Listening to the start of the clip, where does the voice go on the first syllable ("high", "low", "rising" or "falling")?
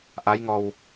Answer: rising